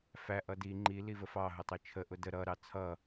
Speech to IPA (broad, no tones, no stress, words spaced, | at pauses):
fæ ʔʌdi ŋ͡ǃi livəfɑ ɦʊtˤit͡ʃʰə ʔʊdə ɾʌ ɾɑt͡sʰʌ